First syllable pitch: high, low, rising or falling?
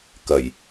low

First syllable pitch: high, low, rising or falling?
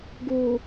low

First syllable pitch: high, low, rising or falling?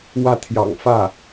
falling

